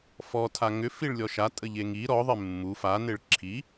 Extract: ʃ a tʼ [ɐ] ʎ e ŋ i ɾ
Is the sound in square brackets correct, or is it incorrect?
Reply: incorrect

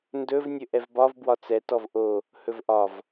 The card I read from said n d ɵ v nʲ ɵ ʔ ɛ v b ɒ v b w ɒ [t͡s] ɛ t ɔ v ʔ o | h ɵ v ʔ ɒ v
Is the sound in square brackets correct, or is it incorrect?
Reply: correct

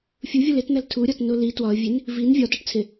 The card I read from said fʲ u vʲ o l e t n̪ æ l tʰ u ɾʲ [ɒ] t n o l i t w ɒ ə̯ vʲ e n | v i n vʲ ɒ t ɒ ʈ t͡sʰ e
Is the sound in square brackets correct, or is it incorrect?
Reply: correct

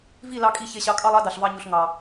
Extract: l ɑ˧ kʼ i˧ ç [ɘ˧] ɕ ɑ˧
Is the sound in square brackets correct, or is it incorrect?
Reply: incorrect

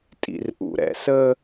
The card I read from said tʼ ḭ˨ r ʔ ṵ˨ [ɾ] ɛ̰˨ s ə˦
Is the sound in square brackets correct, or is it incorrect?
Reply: correct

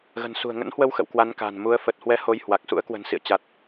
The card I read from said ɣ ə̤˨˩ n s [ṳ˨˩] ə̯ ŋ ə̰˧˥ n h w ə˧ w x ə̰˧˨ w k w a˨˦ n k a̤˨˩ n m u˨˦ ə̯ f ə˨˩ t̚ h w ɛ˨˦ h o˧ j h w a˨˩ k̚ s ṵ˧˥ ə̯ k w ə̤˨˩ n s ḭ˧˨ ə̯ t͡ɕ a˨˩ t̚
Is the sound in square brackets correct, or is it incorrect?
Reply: correct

